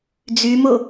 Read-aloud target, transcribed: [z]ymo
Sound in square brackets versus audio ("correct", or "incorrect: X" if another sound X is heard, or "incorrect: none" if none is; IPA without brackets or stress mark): incorrect: d͡z